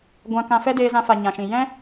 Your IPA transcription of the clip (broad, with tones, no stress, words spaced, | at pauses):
ɡʷã˧kã˧ fɛ˦deː˧zã˧fa˨ ɲã˨ʃĩ˨ jɛ̃˦